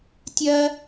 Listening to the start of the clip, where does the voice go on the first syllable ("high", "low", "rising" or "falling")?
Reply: high